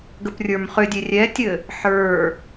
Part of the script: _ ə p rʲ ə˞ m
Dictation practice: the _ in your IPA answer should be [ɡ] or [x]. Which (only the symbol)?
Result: ɡ